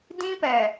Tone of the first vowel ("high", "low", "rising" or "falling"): high